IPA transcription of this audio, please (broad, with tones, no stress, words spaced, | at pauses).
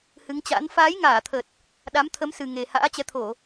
hɨ˨˦ŋt͡ɕa̰˧˥n faː˨˦jŋaː˧˩t̪ʰə˨˩t̚ | ɗa˨˦mt̪ʰə˨˦m sɨ˨˩ŋe˨˩ ha̰ː˧˥t͡ɕɛ˨˦t̪ʰo˧˩˨